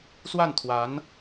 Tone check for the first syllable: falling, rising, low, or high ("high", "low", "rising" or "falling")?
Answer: falling